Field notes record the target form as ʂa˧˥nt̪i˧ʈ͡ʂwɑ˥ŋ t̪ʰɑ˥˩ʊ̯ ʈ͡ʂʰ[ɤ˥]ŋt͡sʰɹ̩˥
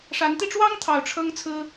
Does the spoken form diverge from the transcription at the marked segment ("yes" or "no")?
no